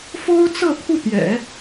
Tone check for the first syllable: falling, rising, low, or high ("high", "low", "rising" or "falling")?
high